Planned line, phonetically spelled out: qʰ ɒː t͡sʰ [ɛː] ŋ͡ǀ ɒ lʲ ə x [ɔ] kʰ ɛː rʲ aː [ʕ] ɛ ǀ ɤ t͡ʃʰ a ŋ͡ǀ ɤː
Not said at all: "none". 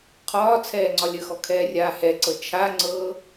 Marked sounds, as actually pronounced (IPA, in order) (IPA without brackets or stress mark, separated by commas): ɛː, ɔ, h